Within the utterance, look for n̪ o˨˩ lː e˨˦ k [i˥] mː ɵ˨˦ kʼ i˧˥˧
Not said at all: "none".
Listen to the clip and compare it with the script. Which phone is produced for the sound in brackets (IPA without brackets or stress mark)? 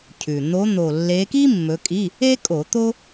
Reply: i˥